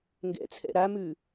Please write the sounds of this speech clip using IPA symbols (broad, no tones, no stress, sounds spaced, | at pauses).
ŋ ɡ ɛ̰ t͡sʰ ɛ̰ ɾ a m ʉ